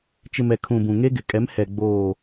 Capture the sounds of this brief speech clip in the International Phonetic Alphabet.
t͡ʃ ɪ˨ m ɛ˨ kʰ ũ˨ b ũ˨ ŋ e˦ ɡ ɪ˨ kʼ ɛ˨˦ m h ɛ˨ ɡ͡b oː˨

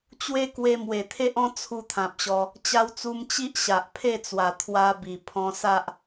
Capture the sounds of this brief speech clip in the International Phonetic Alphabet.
t͡ɕ w e˦ k w e˧ m w e˨˩ t̪ʰ e˦ ʔ ɔ̃˦ t͡sʰ u˧ t̪ʰ ã˨ p̚ ɕ ɔ˧ | t͡ɕ a˧ w t͡s u˧ m t͡ɕ i˦ ʔ ɕ a˨ ʔ pʰ e˥˧ t͡s w a˨˩ t̪ʰ w a˦ b i˨˩ pʰ ɔ̃˧ s a˦ ʔ

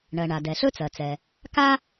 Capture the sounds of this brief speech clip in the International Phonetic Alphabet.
ɳ ɜ˩ ɳ a˩ d ɛ˩ ɬ ɵ˥ t͡s ɜ˩ t͡s ɛ˩ | k a˥

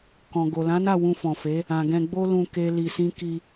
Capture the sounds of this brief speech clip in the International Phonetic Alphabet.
k ɔ̃˨ ɡ o˨ l ã˨˦ n a˦˨ w ũ˧ f ɔ̃˨ f e˨˦ | ã˨ ɡ ɛ̃˧ ɡ͡b o˦ l ũ˧ k e˦ l i˧ s ĩ˦ k i˧

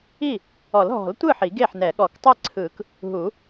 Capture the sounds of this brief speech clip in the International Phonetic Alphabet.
i˥˩ | ɔ˨˩˦ l ɦ ɔ̤˨˩˦ l tʷ ɯ˥˩ ħ i˨˩˦ ɡ e˥˩ ħ n ɛ˨˩˦ ɠ ɔ˨˩˦ k tˤ e˥˩ ǀʰ ɯː˨˩˦ k | ɦ u˨˩˦

